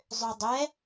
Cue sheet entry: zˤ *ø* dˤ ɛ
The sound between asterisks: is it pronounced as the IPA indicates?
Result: yes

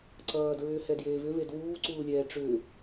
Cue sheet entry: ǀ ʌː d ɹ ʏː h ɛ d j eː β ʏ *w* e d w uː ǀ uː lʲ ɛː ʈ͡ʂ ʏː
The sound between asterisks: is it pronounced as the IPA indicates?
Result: no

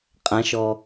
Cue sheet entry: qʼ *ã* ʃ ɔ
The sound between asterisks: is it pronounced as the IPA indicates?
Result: yes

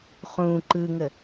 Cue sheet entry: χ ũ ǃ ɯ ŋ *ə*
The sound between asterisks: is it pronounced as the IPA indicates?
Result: yes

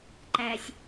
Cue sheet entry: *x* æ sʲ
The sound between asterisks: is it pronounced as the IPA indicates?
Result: no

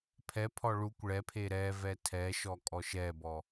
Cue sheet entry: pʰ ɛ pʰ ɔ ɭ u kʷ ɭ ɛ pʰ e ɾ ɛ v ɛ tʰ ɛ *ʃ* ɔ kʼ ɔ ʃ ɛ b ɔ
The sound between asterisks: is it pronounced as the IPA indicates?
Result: yes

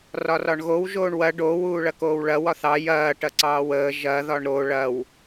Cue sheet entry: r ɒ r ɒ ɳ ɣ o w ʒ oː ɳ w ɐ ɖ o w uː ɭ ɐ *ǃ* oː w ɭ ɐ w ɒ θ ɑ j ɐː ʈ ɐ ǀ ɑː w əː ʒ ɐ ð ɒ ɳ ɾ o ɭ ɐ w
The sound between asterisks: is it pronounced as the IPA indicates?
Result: no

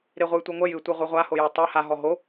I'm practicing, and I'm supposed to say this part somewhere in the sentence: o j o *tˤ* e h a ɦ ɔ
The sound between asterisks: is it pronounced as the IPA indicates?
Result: yes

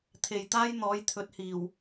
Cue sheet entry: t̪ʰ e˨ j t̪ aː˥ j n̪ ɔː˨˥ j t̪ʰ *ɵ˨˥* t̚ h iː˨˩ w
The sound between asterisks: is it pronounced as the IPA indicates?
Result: yes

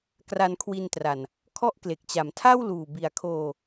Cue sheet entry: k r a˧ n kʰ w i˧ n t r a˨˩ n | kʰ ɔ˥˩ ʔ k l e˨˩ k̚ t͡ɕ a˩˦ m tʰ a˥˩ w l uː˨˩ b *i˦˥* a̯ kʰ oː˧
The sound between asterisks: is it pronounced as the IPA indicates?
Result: no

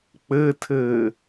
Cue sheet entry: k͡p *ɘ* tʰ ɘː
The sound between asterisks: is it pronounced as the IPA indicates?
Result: yes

